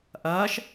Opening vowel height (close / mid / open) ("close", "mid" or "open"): open